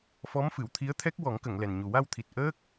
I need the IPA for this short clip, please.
f ɔ˧˥ m f ɨ˨˩˨ w t̪ʰ i˧˥ ə̯ t̪ʰ ɛ˦˥ k̚ w ɔ˨˩˦ ŋ k ə˨˩˨ ŋ l ɛ˨˩ n ɲ u˨˩ w a˧ w t̪ʰ i˨˩ t̚ ʔ əː˦˥ k̚

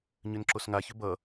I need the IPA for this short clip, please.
ɲ ʏ n ǁ o s ŋ a ç ʏ b ʌ

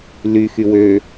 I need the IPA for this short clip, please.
l y x y w ø

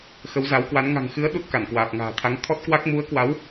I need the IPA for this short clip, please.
x ə˨˦ w z a˨˦ w k w a˨˦ n ŋ a̤˨˩ ŋ x ɨ˨˦ ə̯ ɗ u˦˥ t̚ k a˧˩ n k w aː˨˩ p̚ ŋ a̤ː˨˩ t̪ʰ a˨˦ ŋ t̪ʰ ɔ˦˥ t̚ k w a˦˥ k̚ m u˨˦ ə̯ k w a˨˦ w

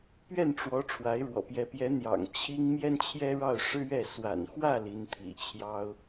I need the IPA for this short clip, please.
p ɥ ɛ˥˩ n ʈ͡ʂ w ɔ˧˥ ʈ͡ʂʰ w a˧˥ ɪ̯ ɻ w ɔ̰˨˩ p j ɛ˧˥ p j ɛ˧˥ n̪ j ɑ̰˨˩ ŋ t͡ɕʰ i˥ ŋ m j ɛ˥ n t͡ɕʰ j ɛ˥ ɻ ɑ˥˩ ʊ̯ ʂ ɻ̩˥ ɥ ɛ˥˩ s w a̰˨˩ n x w ä˥˩ l i˧˥ n t̪ʰ ḭ˨˩ t͡ɕʰ j ɑ˥ ʊ̯

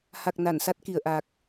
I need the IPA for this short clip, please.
h a˨˩ k̚ n a˧˩ n s a˦˥ t̚ k i˧˩ ə̯ ʔ a˨˩ k̚

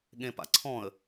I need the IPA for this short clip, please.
ɠ ẽ p a̰ ǀʰ ɔ̃ ə̯

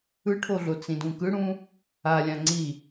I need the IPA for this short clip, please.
ɯ ʈʰ o ɮ o t͡s ĩ d ũ k ɯ ɽ ũ | a lʲ ã ŋ͡ǀ i

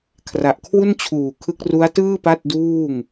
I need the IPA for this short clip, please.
kʰ r a˨˩ ʔ kʰ w u˥˩ n t͡ɕʰ uː˨˩ kʰ ɯ˦˥ k̚ r u˦˥ a̯ t ɯː˥˩ p a˥˩ t̚ d uː˥˩ ŋ

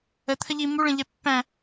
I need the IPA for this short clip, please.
ə t̪ʰ ə ʎ i m u ɭ ə̃ ʎ ɛ pː æ̃

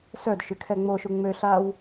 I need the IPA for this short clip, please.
s œ d ʃ y kʰ ɛ ŋ͡m o ʃ u ŋ͡m ø ɬ a w

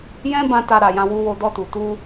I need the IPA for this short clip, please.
j ɛ̃˦ b ã˧ t a˧ ɾ a˨ j ã˧ w u˦ w o˦ d ɔ˧ t u˨ t u˧

